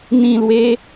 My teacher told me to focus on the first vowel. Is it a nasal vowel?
yes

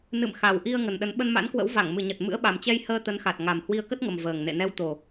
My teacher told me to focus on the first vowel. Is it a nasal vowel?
no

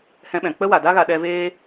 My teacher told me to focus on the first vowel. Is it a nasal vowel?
yes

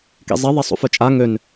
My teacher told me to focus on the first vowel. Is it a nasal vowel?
no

